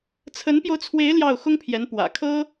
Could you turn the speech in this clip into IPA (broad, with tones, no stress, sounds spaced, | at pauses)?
t͡sʰ ə˧˥ n p j o˧ ʊ̯ t͡sʰ w e˧˥ ɪ̯ l j ɑ˥˩ ʊ̯ x ʊ˥ ŋ pʰ j ɛ˧˥ n p w ä̰˨˩ kʰ ɤ˥